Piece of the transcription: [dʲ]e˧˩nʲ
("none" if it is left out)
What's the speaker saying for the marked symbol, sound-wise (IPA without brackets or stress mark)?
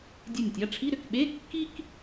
dʲ